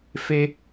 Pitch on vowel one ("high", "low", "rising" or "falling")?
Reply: high